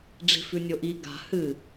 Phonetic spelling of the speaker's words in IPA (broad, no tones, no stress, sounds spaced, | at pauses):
ɖ͡ʐ i̤ f ʉ nʲ o ʔ i ɡ a̤ h ɨ